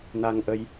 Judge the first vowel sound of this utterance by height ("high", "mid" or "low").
low